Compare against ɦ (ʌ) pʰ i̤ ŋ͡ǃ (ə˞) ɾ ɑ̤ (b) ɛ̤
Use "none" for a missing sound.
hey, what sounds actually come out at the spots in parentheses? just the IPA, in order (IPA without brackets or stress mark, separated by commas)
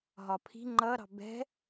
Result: ɒ, ʌ, b